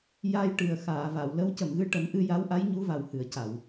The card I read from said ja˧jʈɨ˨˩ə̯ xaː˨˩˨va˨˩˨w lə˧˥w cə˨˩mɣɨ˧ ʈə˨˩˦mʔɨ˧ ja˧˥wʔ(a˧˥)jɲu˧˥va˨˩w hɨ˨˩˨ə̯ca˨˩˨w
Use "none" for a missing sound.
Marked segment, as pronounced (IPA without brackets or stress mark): a˧˥